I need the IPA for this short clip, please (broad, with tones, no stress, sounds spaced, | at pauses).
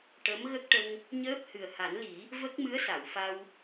ʈ ə˧˥ m ɣ ə˦˥ k̚ ʈ ə˧ ŋ | ɲ əː˦˥ p̚ h ɨ˨˩ ə̯ h a˨˩˦ n l i˨˩˦ | v ə˦˥ k̚ m ɨ˧˥ ə̯ s a˨˩˨ w f a˧ w